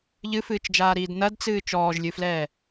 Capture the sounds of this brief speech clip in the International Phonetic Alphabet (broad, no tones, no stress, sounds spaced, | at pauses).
ʎ ɨ f ɨː t͡ʃ d͡ʒ aː ɾ iː d n ɐ d t͡s ɨː t͡ʃ ɔː ʒ lʲ ɨ f l ɛː